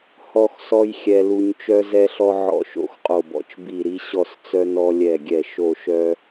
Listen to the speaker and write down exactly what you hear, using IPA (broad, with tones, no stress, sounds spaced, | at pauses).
h ɔ˦ x s ɔ˦ j xʲ ɛ˦ l u˦ ɲ t͡ʃ œ˦ z ɛ˦ ɬ ɔ˦ ʕ ɔ̰˦˨ ʃ o̰˦˨ x qʼ o˦˨ b ɔ̰˦ t͡ʃ b i˦˨ ɾ i˦ ɕ ɔ˦˨ s t͡s œ˦ n ɔ˦ lʲ ɛ˦˨ ɡʲ ɛ˦˨ ʃ o˦˨ ʃ œ˦